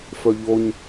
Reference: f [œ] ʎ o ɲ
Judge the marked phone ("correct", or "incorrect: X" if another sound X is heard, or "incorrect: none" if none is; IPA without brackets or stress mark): correct